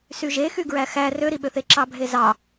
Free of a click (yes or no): no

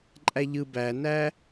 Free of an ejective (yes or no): no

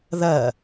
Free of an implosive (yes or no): yes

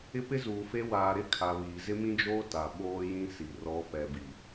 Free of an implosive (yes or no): no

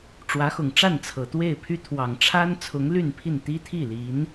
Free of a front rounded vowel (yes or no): no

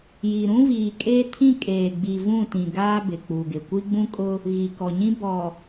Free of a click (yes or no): yes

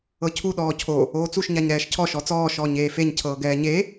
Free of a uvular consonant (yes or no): yes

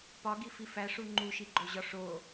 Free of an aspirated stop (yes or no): yes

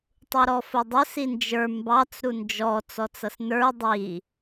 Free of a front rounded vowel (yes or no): yes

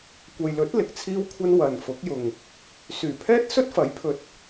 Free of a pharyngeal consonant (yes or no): yes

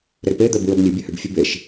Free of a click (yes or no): yes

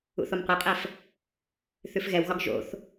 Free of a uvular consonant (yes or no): no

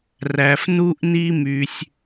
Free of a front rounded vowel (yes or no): no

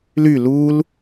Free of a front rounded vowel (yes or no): no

